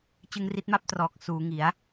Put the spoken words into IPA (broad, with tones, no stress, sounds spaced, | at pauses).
t͡ɕ ɯ˧ ŋ r i˦˥ t̚ m a˥˩ p̚ t r ɔː˨˩ k̚ s uː˩˦ ŋ i˩˦ a̯